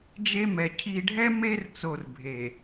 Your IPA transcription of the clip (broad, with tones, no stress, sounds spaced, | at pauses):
d͡ʒ e˦ m ɛ˨ cʰ i˨ ɖʱ ɛ˦ m e˦ r t͡s o˨ r bʱ e˨